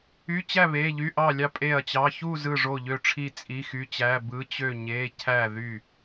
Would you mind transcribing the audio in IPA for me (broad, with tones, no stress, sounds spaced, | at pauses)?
y˧˥˧ t͡ɕ æ˥˨ β e˧˥˧ ʎ y˧˥˧ ʔ ɑ˥˨ lʲ ɑ˥˨ pʼ e˥˨ ɐ̯ t͡ɕ ɑ˧˥˧ ç u˥˨ z ɯ˥˨ ʐ o˥˨ ʎ ø˥˨ ʈ͡ʂʰ i˥˨ t͡sʼ i˧˥˧ x y˧˥˧ t͡ɕ æ˧˥˧ b ɯ˧˥˧ t͡ɕ ø˥˨ ɲ e˧˥˧ cʰ æ˥˨ ð y˥˨